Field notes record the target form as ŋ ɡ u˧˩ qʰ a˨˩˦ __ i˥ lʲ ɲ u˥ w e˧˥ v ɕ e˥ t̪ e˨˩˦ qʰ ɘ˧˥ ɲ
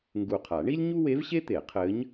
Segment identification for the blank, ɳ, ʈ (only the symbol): ɳ